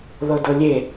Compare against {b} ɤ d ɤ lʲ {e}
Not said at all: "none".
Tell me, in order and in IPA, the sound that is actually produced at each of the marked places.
ð, e

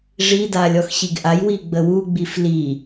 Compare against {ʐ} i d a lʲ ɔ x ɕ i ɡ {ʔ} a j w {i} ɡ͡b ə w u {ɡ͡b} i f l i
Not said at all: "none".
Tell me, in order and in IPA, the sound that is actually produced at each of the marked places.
ʐ, ʔ, i, ɡ͡b

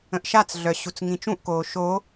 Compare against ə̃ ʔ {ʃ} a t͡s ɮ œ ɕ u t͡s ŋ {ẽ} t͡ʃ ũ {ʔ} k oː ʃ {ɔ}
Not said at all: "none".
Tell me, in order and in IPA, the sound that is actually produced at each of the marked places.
ʃ, ĩ, ʔ, o

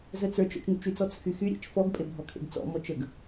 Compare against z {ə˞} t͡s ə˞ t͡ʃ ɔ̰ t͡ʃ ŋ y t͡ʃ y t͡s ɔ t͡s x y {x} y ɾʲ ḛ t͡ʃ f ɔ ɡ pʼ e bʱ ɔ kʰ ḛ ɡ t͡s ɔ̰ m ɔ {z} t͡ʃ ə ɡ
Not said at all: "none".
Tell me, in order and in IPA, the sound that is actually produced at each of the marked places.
ə, x, none

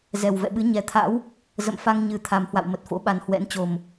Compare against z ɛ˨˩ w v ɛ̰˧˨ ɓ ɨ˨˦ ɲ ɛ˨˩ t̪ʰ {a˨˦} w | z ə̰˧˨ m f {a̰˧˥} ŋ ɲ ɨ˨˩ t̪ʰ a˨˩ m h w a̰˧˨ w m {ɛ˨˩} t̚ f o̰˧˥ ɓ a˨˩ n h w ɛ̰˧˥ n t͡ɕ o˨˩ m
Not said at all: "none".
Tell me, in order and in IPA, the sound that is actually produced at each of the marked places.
a̰˧˥, a˧, ə˨˩

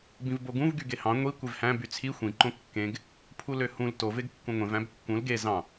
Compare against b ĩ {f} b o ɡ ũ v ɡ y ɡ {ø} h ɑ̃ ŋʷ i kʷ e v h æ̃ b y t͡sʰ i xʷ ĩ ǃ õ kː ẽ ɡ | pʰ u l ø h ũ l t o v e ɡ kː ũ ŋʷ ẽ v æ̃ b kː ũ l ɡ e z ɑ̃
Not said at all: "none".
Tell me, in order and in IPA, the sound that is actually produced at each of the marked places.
v, e

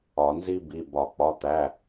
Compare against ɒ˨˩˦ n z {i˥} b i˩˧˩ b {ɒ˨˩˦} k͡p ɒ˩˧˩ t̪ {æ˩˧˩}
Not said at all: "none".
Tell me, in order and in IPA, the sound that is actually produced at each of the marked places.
i˥, ɒ˨˩˦, æ˩˧˩

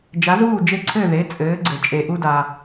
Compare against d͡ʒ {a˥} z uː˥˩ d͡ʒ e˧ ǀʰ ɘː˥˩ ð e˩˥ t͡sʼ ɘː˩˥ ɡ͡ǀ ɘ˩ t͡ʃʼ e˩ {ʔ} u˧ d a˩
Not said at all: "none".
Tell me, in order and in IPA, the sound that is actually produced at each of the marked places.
a˩˥, ʔ

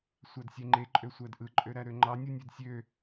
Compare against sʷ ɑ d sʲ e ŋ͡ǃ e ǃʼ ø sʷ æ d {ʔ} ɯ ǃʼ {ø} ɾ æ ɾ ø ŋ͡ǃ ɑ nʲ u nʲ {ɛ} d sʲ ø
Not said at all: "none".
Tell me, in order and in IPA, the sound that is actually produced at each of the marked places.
ʔ, ø, ø

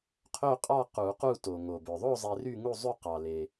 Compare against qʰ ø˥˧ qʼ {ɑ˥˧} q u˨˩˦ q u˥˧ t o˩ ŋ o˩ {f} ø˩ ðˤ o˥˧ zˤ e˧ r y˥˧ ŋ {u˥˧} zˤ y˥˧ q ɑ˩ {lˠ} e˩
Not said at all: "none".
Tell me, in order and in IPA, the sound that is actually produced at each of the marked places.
ɑ˥˧, b, u˥˧, l

